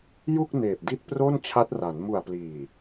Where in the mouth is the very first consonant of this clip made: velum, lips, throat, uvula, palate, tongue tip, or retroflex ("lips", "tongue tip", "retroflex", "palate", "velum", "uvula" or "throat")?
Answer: palate